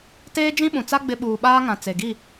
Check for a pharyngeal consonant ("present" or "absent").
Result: absent